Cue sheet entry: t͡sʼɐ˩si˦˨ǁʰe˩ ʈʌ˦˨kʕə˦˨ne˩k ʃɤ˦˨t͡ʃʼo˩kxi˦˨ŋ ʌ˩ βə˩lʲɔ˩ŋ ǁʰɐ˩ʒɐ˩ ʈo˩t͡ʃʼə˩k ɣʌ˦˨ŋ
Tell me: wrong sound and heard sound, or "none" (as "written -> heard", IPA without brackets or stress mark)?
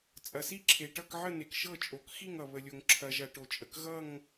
ɔ˩ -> o˩